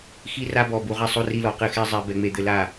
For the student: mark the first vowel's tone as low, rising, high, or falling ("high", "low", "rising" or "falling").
high